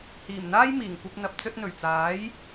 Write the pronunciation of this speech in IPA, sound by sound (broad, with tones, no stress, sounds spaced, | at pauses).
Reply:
h iː˨˩ m n̪ aː˥ j m iː˨˩ ŋ kʷ ɐ˧ p̚ n̪ ɐ˨ p̚ t͡s ɵ˧ t̚ n̪ ɵ˨˩ ɥ t͡s aː˨˥ j